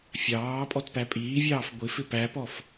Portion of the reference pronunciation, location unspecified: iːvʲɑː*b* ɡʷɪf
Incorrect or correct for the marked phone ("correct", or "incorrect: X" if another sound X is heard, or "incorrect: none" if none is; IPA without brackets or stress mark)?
incorrect: f